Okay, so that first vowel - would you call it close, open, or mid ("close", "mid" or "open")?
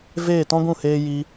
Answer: mid